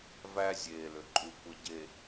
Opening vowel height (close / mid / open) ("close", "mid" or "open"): open